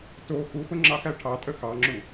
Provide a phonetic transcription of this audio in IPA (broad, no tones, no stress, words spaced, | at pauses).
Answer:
to xuxʊ ŋ͡ǁɑxæʈʰɑtʼə xɑŋ͡ǁu